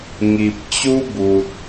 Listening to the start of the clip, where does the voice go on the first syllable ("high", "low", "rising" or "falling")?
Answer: low